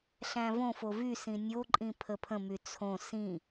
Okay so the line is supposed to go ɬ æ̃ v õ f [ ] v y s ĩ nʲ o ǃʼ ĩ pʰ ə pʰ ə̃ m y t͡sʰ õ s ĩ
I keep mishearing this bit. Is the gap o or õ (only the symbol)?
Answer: o